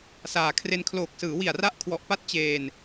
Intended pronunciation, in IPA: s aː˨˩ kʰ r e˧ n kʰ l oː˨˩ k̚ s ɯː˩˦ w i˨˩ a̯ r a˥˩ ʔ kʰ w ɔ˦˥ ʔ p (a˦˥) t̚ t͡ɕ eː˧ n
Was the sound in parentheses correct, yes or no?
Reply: no